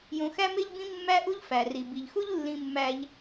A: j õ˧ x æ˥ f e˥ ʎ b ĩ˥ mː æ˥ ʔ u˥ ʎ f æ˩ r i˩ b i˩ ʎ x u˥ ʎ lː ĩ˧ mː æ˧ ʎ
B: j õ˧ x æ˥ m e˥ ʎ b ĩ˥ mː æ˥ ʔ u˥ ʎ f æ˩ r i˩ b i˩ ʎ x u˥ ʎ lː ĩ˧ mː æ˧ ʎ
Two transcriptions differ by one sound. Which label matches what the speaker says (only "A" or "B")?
B